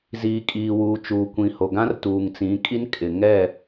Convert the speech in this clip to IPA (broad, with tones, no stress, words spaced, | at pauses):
ziː˨kʼiː˨wuː˨ t͡ʃuː˨kʷĩ˨ho˨ ɡã˦rtuː˨ŋt͡sĩ˨˦kʼi˦n kʼɪ˨ŋɛ˦˨